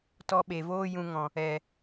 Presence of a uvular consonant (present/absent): absent